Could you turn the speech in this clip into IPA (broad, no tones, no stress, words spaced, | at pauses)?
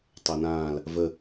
tˤænãːl | və